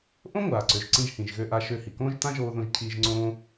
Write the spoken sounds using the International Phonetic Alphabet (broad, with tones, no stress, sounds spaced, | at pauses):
ʔ õ˥ ŋʷ aː˩ ǀ ø˩ ʒ ǀ ĩ˧ ʒ h ĩ˩ ʒ ɣ ø˧ ʔ a˧ ʃ ø˧ h i˩ k õː˥ ʒ t ã˥ ʒ oː˧ ð õ˧ ʒ cʰ iː˧ ʒ ŋ͡ǀ õː˥